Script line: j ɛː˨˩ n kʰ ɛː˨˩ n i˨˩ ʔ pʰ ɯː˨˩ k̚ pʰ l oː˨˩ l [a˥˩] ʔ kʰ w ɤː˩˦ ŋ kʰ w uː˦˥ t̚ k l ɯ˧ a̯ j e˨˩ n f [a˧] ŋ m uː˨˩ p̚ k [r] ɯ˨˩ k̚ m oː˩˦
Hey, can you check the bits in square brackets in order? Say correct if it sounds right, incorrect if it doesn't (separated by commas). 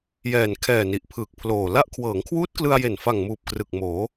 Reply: correct, incorrect, correct